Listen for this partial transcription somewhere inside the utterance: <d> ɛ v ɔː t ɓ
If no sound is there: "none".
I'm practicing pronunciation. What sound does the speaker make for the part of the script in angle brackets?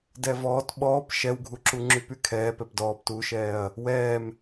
d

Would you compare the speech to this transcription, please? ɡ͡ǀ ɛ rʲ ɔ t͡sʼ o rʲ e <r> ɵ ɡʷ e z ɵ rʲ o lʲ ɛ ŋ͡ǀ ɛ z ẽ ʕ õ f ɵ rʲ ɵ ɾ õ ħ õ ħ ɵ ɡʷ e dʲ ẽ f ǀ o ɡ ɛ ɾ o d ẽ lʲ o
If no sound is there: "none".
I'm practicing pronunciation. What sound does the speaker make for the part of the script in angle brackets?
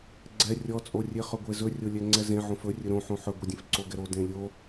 χ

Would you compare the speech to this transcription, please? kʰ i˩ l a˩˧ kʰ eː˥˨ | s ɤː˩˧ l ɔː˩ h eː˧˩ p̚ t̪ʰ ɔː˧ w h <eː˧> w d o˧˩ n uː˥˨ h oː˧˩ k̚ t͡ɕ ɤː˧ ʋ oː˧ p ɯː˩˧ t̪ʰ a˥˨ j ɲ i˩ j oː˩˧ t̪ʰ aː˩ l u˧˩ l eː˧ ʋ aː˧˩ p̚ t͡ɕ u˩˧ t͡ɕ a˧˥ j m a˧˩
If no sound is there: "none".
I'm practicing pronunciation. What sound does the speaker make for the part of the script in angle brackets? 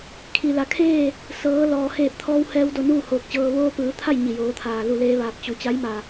ɛː˧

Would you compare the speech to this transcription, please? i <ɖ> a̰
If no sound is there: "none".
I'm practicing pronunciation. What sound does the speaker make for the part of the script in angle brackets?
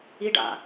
ɖ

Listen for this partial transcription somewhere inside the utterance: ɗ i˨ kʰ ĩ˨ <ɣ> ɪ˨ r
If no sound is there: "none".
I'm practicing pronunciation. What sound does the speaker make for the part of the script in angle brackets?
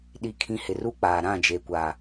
h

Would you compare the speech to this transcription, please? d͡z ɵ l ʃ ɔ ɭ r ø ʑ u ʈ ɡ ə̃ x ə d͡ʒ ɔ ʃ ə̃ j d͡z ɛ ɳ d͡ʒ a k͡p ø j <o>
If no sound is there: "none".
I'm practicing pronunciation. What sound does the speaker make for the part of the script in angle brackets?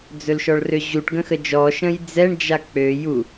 u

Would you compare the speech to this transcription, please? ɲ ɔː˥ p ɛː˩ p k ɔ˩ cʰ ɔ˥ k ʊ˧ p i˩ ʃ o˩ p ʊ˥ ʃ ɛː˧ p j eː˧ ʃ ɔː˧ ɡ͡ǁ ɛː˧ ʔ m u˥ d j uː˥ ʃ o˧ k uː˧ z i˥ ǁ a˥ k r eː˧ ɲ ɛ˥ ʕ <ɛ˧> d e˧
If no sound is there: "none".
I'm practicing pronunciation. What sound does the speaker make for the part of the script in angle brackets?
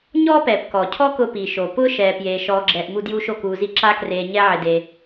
ɪ˧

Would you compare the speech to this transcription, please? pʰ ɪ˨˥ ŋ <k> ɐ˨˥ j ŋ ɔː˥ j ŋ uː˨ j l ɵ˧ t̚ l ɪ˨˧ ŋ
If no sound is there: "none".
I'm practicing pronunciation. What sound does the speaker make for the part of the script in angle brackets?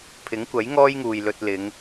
kʷ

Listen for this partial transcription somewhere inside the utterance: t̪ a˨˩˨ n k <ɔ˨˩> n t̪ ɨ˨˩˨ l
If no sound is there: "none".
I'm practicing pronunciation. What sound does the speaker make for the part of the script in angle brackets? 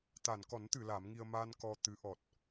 ɔ˨˩˦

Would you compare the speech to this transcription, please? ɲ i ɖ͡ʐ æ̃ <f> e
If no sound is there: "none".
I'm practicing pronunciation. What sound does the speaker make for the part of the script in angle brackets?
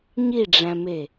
m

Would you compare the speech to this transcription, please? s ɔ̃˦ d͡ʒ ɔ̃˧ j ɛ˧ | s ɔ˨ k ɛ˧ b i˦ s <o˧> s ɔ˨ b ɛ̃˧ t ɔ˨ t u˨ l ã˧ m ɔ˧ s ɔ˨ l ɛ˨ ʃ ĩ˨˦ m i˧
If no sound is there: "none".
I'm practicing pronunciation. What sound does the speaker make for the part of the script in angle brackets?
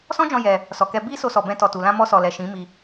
o˧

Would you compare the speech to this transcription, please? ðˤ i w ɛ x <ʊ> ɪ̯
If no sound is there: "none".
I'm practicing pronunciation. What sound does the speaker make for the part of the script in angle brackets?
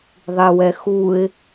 u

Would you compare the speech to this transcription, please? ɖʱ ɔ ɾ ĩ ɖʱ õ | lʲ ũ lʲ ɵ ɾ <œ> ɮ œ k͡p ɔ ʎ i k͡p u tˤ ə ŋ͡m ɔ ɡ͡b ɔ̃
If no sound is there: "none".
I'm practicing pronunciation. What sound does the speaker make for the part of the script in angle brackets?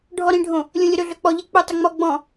ɵ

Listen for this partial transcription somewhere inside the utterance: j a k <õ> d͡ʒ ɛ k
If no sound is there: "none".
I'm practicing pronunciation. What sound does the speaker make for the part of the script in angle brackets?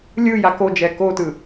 o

